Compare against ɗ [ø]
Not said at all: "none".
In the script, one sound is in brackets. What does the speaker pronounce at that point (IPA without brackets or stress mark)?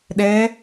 ɛ